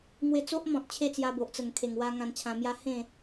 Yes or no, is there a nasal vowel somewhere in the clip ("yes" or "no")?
yes